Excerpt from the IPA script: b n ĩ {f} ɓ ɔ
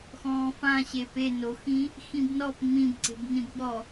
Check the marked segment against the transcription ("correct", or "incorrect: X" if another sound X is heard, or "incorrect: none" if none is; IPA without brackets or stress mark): incorrect: b